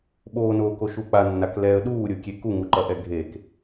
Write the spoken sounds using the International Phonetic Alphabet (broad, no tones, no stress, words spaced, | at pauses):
ɓonoːko ʃuk͡pa nːaklɛə̯ ɗuːɾʲokʲe kuŋuǃɐʔɛ ɡʱek